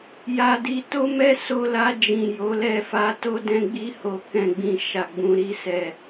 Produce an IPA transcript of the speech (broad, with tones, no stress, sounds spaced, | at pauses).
j a˧ d i˧ t o˦ m ɛ˦ s o˧ l a˧ d͡ʒ ĩ˨ j o˨˦ l ɛ˧ f a˧ t o˧ d ɛ̃˧ ɡ͡b i˧ h o˨ k ɛ̃˨ ɡ͡b ĩ˨ ʃ a˨ ɡ͡b ũ˨ ɾ i˧ s ɛ˨